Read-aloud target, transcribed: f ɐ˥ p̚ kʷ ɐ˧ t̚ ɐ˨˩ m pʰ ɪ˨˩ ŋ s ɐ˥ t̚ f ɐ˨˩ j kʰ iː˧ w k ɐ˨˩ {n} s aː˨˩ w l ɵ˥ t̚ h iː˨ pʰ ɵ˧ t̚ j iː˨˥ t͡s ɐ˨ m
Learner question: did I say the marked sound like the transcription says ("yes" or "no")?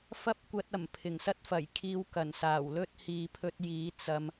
yes